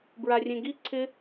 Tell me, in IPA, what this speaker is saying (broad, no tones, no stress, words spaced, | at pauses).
bɹarʲẽɡi ǀʰɪ